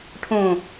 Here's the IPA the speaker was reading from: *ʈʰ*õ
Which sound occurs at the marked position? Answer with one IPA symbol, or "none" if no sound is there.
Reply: ʈʰ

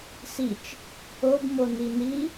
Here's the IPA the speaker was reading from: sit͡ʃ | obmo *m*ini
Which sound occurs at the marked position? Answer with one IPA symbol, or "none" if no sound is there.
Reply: n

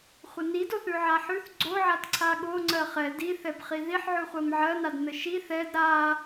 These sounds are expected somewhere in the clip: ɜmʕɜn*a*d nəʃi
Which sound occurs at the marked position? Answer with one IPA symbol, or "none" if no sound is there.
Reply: a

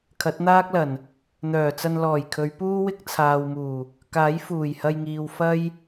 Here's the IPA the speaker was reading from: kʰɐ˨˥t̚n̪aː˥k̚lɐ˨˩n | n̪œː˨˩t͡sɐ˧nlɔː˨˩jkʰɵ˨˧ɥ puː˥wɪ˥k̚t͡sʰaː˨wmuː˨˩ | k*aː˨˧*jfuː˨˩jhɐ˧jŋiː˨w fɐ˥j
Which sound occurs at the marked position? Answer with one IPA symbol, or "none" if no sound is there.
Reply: aː˨˥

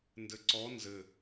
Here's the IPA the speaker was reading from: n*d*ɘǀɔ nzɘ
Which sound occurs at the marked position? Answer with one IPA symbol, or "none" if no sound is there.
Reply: d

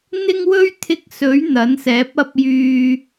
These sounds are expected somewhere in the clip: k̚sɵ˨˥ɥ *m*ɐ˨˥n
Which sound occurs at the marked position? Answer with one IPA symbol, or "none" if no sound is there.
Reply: n̪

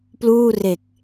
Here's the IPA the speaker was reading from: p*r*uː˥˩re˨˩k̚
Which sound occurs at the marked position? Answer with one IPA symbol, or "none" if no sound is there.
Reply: l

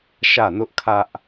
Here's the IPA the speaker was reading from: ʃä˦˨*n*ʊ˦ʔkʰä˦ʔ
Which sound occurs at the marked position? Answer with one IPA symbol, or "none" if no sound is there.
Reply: n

